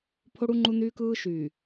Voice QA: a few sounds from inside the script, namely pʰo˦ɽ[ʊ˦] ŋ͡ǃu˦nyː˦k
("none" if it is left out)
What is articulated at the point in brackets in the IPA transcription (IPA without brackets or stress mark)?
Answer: u˦